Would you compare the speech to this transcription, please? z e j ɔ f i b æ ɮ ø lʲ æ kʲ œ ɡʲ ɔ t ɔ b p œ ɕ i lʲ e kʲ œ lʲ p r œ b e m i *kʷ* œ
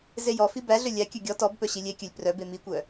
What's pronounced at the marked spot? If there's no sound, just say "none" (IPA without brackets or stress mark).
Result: kʷ